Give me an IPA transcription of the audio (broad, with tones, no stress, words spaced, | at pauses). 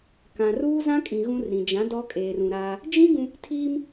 kã˨ ruː˦zã˦kʼĩ˨ ɣũ˦rɾĩ˨ d͡ʒã˨˦ dɔ˦kʼeː˨r ũ˨ɾaː˦ | d͡ʒĩ˦ ɡũ˦ | tʰiː˦m